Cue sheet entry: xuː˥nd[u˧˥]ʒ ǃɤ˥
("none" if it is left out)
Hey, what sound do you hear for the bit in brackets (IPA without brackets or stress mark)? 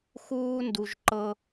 u˧